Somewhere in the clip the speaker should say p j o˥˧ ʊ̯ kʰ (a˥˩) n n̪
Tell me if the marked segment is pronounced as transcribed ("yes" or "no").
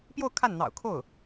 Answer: yes